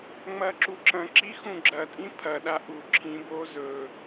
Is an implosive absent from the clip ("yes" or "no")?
no